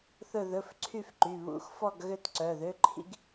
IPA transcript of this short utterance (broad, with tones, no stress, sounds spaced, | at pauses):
θ ɵ˥˧ ð ɵ˧˥˧ f ǀʰ y˥˧ f ǃ y˩˧˩ β ṵ˧˥˧ x f ɔ˥˧ ɡ ɣ ø˥˧ t ǀ œ˩˧˩ ð ø˧˥˧ ǃʰ ḭ˥˧ ɡ